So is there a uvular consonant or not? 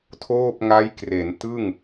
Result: no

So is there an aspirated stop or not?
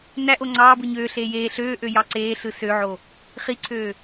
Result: yes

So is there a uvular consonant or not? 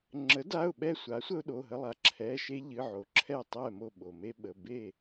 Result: no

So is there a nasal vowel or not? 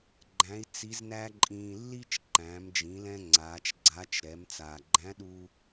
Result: yes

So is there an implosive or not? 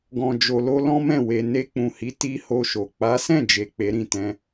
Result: no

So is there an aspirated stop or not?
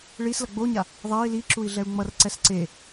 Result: no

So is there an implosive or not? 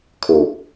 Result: no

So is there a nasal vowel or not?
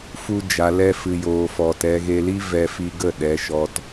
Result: no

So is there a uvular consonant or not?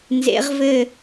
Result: yes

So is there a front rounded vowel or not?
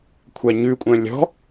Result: yes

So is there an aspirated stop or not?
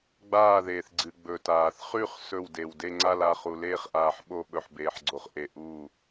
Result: no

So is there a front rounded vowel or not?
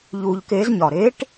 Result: no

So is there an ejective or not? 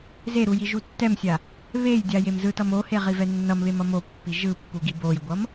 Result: no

